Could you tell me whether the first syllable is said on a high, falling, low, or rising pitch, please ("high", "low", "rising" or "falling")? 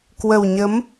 low